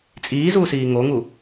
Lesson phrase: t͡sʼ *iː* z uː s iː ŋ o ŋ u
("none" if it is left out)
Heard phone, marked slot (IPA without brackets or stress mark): iː